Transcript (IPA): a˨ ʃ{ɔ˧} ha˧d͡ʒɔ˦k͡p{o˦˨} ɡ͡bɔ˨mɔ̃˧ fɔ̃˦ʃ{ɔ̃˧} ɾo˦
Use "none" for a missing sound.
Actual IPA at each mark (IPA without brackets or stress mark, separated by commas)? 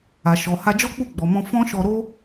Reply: ɔ˨, u˦˨, ɔ˧